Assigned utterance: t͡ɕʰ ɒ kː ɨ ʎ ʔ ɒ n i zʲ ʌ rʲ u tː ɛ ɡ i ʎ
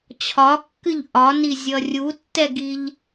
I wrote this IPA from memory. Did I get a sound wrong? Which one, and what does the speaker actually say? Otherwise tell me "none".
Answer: none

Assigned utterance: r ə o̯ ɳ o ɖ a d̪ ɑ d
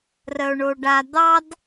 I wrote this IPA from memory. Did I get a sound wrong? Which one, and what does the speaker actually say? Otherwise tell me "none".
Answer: none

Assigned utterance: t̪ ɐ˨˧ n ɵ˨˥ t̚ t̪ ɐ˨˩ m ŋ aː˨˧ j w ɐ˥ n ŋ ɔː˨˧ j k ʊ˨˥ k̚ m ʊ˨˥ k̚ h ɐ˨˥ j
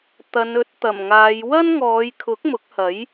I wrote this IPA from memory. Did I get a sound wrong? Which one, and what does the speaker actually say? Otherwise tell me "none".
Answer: k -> kʰ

